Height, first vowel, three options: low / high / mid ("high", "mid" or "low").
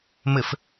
mid